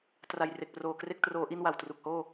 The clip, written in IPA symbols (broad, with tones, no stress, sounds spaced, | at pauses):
t r a˨˩ j r e˨˩ k̚ p r oː˨˩ k r e˥˩ k̚ t r oː˦˥ ʔ i˥˩ n w a˨˩ w t r u˨˩ k̚ h oː˥˩